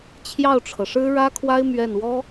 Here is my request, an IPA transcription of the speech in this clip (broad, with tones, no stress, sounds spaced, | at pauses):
t͡ɕʰ j ɑ˥˩ ʊ̯ ʈ͡ʂʰ ɤ˩ ʂ ɻ̩˥ ɻ ä˥ kʰ w a˥ ɪ̯ m ɥ ɛ˥˩ n w ɔ˥